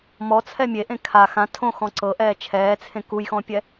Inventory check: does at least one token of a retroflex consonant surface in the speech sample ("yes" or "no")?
no